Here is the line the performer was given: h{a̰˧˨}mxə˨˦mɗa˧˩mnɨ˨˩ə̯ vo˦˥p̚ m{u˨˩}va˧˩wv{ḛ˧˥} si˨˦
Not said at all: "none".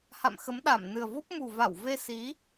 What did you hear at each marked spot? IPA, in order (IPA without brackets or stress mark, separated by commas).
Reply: a̰˧˨, u˨˩, e˧